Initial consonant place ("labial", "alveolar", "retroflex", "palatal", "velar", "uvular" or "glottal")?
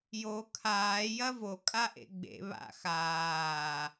palatal